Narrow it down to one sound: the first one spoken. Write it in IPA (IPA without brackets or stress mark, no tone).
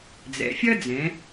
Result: d͡z